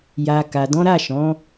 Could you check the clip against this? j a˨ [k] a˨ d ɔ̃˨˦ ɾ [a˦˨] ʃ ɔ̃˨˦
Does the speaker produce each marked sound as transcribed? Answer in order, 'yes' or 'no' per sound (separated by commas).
yes, yes